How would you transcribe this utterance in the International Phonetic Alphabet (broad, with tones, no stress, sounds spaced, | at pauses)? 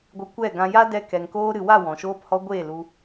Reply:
ɡʷ ɨ˨ kʷ ɛ˦˨ ɡ ã˧ j a˦ d ɛ˧ k ɛ˨ ŋ k oː˧ ɾ ɨ˨ w a˦˨ w ɔ̃˨ ʃ oː˧ p h ɔ˧ ɡʷ eː˦˨ l u˧